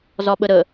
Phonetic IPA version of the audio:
zɒɓəɾə

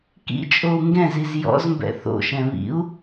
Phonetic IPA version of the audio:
kḭt͡ʃʼou̯ ŋɡɛ̃ziz jɔ̰zmbɛ̰ θo̰ʃɛ̃ βḭu̯

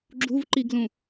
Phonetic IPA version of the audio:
ɡ͡ǁuvǃiɡlũ

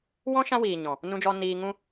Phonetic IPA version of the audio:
wɔ̃˦ ʃã˦wiː˨ɲɔ̃˨ | nũ˧d͡ʒɔ˧ niː˧ŋũ˦

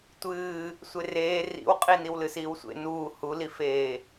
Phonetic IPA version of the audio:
tʷɨː | sʷereː rḭwqʼi niwlɨsiːwsʷḛ nuː hulifeː

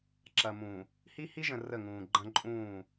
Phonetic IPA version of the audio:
ǁɐ˨mũː˨ | hi˦hi˦ʒə̃˨ rə˦˨ŋũː˨ ɡ͡ǃɐ̃˦ ǃʼũː˦˨

